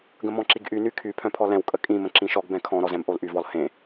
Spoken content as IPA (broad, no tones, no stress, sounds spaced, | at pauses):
ɡ ə̃ m ɔ̃ ǁ i ɡ ʔ y n y kʰ y pʰ œ̃ pʰ ɔ l ɛ̃ w kʼ ə kʼ ĩ m ə̃ ǁ ĩ ʃ ɔ ɡ b ɛ̃ kʰ ɔ̃ ɾ ɔ z ɛ̃ m ʔ o l ʔ y v ɔ l h ẽ